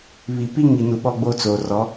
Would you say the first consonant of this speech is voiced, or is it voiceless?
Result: voiced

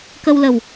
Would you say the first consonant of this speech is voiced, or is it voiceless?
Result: voiceless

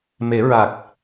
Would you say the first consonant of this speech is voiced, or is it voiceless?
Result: voiced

